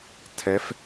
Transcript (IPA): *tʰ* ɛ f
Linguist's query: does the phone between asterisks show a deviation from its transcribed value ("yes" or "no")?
no